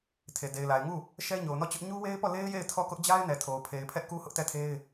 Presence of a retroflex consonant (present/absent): absent